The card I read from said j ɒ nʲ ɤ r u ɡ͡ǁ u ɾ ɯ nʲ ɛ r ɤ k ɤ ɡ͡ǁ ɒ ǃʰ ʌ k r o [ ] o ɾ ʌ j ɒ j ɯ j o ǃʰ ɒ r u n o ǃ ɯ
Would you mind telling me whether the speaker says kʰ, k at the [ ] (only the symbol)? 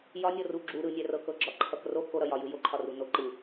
k